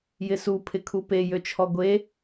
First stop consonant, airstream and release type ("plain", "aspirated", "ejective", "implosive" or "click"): aspirated